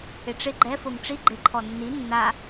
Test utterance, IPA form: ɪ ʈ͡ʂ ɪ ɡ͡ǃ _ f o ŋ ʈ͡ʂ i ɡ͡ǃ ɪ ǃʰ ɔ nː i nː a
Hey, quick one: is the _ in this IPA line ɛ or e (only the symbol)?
ɛ